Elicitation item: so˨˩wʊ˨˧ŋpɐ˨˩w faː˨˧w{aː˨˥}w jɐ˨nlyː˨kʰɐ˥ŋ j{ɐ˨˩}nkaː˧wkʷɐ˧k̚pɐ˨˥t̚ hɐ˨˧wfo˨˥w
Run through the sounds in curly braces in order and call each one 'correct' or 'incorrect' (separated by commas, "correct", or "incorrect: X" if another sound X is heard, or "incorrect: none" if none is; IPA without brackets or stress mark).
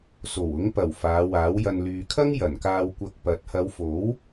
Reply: correct, correct